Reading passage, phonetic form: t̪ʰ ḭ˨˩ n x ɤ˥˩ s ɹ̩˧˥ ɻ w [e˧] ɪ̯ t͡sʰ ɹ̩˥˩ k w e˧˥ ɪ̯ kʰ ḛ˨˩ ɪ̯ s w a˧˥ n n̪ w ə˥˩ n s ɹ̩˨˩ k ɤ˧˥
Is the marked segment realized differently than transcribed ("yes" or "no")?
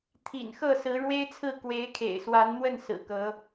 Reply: yes